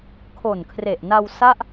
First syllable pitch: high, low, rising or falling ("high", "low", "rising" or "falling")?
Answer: low